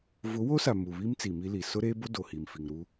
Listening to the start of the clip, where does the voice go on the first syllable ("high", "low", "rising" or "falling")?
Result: rising